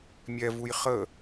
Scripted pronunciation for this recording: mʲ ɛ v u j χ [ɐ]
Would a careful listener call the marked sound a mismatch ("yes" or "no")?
yes